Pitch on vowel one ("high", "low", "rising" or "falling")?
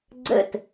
falling